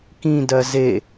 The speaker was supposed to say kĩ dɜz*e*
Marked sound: correct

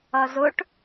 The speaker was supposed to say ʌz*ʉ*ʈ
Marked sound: incorrect: ʊ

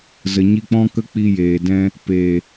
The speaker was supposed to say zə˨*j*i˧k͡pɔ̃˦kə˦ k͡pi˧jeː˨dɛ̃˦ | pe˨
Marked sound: incorrect: ɲ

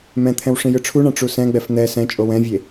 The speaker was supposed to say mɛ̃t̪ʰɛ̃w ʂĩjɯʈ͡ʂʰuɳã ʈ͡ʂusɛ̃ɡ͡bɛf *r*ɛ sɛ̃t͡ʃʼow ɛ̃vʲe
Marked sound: incorrect: n̪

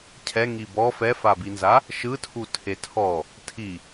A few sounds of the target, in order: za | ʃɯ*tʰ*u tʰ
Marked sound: correct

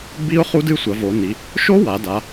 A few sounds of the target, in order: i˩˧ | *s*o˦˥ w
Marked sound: incorrect: ʃ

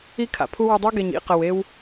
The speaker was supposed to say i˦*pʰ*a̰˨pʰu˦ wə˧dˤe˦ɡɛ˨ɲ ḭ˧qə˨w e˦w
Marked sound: incorrect: kʰ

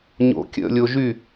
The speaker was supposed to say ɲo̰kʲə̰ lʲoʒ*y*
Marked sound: correct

